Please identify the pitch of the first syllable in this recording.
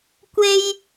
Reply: high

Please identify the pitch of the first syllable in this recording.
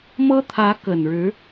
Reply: high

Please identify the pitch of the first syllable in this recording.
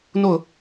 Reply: falling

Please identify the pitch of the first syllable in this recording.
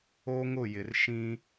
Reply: high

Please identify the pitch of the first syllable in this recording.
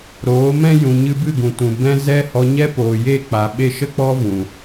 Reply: rising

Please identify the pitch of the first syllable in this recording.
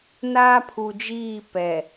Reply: high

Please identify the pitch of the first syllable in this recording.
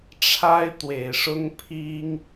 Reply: high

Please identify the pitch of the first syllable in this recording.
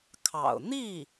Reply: low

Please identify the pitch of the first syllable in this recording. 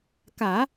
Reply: low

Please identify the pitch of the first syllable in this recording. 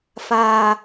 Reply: low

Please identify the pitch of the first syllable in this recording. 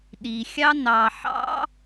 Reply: low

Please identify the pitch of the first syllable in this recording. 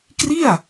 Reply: falling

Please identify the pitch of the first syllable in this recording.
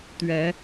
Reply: rising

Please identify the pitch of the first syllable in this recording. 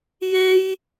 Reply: high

